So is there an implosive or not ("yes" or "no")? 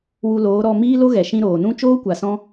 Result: no